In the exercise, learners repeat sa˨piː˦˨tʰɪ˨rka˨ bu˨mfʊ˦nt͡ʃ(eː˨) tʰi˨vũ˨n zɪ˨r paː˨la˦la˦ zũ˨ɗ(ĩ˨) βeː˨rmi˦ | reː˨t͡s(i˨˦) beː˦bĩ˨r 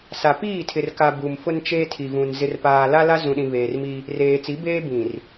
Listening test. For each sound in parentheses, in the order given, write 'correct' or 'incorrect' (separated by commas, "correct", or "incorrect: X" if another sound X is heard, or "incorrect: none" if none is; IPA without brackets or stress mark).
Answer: incorrect: eː˦, correct, correct